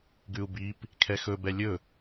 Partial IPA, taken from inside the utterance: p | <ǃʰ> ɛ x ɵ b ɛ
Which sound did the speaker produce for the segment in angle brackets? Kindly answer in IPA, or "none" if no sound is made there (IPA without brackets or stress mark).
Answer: kʰ